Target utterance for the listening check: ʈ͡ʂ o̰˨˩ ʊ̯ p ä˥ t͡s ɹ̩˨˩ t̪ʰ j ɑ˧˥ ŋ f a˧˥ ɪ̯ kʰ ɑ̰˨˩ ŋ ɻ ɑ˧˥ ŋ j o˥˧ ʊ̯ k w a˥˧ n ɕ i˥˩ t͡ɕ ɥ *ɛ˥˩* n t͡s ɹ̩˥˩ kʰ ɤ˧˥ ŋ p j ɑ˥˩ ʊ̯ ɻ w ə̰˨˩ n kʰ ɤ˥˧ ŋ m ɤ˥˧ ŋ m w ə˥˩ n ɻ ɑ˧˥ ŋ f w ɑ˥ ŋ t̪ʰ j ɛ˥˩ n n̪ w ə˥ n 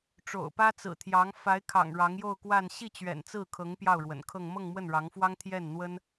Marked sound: incorrect: ɛ̰˨˩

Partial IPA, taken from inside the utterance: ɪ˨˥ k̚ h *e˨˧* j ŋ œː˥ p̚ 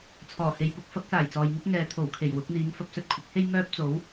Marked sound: incorrect: e˥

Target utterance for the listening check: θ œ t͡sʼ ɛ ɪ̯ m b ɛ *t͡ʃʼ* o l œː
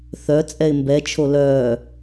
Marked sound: incorrect: t͡ʃʰ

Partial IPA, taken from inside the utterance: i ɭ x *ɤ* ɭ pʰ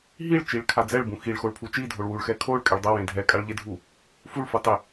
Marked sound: incorrect: o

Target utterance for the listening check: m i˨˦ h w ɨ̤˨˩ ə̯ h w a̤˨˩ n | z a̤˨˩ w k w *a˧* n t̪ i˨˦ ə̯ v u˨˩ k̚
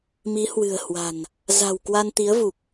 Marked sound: correct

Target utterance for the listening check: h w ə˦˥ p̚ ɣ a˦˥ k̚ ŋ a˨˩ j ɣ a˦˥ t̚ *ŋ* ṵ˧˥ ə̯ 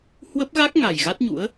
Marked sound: incorrect: ɲ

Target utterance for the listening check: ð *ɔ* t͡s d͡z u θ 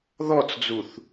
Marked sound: correct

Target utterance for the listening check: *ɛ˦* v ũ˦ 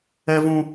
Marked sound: correct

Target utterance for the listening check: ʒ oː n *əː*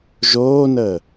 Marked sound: correct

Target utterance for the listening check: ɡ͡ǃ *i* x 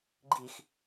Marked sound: correct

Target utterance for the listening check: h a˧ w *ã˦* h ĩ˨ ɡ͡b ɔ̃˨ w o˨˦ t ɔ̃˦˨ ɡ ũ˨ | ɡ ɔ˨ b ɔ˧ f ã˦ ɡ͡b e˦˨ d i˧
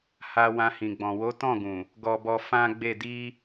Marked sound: incorrect: ã˧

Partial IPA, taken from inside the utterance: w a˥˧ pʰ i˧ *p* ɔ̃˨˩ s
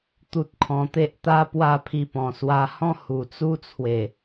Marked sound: correct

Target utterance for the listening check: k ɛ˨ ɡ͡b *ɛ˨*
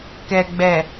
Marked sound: correct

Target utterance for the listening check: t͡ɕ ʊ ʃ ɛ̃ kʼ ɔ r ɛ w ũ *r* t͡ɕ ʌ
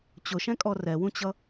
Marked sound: incorrect: none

